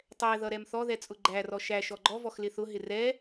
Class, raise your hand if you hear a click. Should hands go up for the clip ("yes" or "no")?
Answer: yes